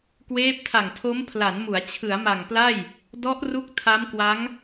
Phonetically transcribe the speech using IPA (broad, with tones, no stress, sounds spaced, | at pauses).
k w eː˦˥ p̚ tʰ a˨˩ ŋ tʰ o˦˥ m pʰ l a˩˦ n m u˩˦ a̯ t͡ɕʰ ɯ˩˦ a̯ m a˨˩ ŋ p l a˥˩ j | d ɔ˦˥ ʔ r u˦˥ k̚ tʰ a˦˥ m k w a˦˥ ŋ